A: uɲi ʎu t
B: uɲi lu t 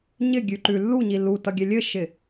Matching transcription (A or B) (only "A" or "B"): B